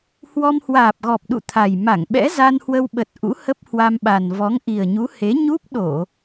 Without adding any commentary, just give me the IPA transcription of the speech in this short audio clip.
h w ɔ˧ m h w aː˨˩ p̚ ɣ ɔ˨˩ p̚ ɗ ṵ˧˨ t̪ʰ a˨˩ j m a˧˩ ŋ ɓ ɛ̰˧˥ z a˧ n h w ə˧ w ɓ ə˨˩ t̚ ʔ ṵ˧˥ h ə˦˥ p̚ h w a˧ m ɓ a˨˩ n v ɔ˨˦ ŋ ʔ i˨˩ ə̯ ɲ u˨˦ h e˨˦ ɲ u˦˥ p̚ ɗ o˧˩˨

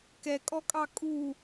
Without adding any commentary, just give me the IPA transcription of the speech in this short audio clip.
k ɛ kʼ ɔ kʼ ɑ kʼ u

